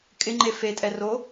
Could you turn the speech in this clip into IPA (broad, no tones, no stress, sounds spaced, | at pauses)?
kʼ ɪ ŋ͡ǃ e f e tʼ ɛ r o